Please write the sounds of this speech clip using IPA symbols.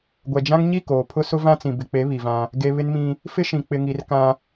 ɡʷ ɛ˨ d͡ʒ ã˦ ŋ ɲ i˦˨ k oː˨ pʰ ʊ˦ s ʊ˦ v ã˦ t͡s ĩ˨ b ɪ˨ k͡p e˨˦ β i˨ v ã˦ | ɡ e˨ β ɪ˦ n m ĩ˦ | f ɪ˦ ʃ ĩ˨ k͡p ɪ˨ ŋ i˨ r k ã˦

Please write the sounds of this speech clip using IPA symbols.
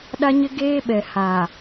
ɗ a˦ ɲ ɪ˦ ɡ eː˦ ɓ ɛ˨ h a˨

